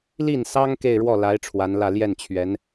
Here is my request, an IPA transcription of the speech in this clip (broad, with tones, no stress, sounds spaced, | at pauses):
l i˥˩ n s ɑ˥ ŋ k e˥˧ ɪ̯ ɻ w ɔ˥˩ l a˧˥ ɪ̯ ʈ͡ʂʰ w a˧˥ n l ä˥˧ l j ɛ˥˩ n t͡ɕʰ ɥ ɛ˧˥ n